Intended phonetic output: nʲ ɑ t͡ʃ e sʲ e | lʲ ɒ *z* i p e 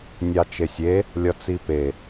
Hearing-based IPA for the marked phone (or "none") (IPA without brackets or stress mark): t͡s